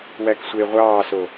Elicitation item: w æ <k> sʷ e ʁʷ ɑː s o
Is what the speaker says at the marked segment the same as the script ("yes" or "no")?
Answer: yes